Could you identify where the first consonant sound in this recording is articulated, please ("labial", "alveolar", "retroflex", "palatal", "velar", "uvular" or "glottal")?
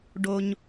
retroflex